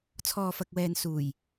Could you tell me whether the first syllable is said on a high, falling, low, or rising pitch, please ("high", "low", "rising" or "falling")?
low